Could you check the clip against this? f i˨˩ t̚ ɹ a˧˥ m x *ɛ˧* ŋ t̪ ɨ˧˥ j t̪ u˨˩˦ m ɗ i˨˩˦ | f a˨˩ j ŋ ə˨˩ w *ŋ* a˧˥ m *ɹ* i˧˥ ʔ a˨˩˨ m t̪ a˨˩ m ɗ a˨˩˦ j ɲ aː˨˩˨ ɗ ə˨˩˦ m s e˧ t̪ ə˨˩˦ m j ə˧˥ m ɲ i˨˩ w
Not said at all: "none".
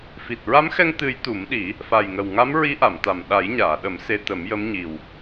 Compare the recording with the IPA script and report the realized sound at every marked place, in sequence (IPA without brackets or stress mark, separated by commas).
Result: ɛ˧, ŋ, ɹ